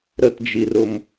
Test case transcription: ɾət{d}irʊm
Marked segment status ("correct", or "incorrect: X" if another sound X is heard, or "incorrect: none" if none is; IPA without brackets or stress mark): incorrect: d͡ʒ